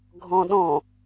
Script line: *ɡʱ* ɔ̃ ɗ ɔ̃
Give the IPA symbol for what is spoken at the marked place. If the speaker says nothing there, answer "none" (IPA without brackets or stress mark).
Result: ɡʱ